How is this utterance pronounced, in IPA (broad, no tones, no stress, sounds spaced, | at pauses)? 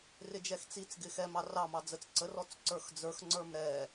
r ɪ d͡ʒ ɛ x t͡s i t͡s ɡ ɪ x ɛ m ɑ r ɑ m ɑ d͡z ə t͡s ǀ ə r ɔ t͡s ǀ ə˞ x d͡z ə˞ x ŋ͡ǀ ə˞ m ɾ ɛ